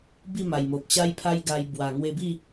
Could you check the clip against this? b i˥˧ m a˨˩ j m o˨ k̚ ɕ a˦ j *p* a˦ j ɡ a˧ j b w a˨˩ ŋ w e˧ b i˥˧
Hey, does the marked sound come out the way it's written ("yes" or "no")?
no